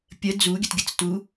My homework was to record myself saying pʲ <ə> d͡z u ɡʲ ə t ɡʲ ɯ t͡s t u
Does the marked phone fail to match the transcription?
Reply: no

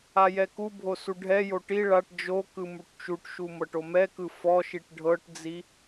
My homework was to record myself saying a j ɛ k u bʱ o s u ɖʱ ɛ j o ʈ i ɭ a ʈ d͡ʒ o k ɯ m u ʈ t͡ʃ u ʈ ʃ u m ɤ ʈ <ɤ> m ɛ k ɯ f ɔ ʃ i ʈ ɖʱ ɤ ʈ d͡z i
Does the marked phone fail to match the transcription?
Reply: yes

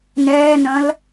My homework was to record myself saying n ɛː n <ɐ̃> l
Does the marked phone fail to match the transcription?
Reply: no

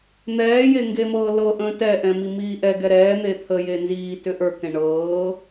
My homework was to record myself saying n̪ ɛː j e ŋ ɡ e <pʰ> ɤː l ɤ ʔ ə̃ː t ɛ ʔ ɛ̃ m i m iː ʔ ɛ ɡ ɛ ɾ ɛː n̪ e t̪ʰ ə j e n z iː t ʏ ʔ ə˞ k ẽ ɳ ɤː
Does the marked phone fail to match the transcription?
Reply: yes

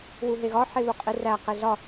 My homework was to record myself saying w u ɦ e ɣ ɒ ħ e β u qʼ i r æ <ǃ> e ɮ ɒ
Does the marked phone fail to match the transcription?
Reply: yes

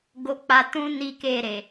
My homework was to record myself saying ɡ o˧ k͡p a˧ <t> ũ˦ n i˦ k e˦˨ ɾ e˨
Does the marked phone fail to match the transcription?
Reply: no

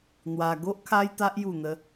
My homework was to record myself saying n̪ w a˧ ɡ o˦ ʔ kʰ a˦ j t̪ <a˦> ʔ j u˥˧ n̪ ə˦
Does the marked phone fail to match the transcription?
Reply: no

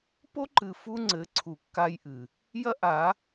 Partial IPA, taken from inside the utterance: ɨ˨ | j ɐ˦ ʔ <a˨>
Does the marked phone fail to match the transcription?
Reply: yes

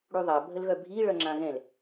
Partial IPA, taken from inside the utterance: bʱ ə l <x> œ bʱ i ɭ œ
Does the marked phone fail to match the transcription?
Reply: yes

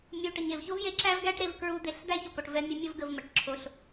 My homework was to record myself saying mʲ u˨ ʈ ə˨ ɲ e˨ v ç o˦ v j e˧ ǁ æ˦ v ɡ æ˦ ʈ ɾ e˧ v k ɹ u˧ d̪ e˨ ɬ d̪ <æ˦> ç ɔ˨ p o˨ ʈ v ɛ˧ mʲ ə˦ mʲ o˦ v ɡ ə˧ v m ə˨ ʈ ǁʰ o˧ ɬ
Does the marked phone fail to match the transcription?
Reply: no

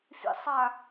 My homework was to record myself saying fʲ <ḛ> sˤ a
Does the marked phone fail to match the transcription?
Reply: no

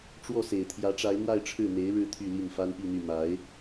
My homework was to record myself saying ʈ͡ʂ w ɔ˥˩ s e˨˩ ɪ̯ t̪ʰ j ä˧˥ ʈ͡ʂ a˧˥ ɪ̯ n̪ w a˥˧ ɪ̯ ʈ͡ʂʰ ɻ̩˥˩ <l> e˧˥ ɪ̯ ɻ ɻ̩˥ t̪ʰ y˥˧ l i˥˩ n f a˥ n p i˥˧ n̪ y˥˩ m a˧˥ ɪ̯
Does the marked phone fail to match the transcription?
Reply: yes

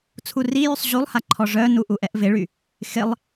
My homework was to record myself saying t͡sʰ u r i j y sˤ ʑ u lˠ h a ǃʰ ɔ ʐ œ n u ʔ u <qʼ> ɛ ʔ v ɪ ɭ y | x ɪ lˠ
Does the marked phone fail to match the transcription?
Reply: yes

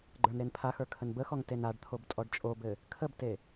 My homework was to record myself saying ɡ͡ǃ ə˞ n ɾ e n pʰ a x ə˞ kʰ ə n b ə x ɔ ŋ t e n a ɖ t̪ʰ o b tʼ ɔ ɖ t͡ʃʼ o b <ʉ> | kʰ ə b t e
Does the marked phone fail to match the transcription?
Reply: yes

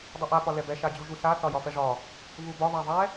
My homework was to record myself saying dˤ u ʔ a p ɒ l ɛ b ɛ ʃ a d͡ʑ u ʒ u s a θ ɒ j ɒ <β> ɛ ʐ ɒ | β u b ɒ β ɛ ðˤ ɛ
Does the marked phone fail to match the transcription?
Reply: yes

